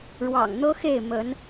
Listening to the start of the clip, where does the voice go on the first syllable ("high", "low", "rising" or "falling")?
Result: low